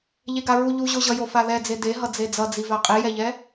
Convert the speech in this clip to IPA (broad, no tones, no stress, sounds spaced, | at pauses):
ʎ e ɡ a ɹ u ʎ u ʑ o ʑ ʌ j o f a ð ɛ d͡z e d e ɦ ʌ d͡z e d͡z ʌ d͡z i v a qʼ i j ɛ ʎ ɛ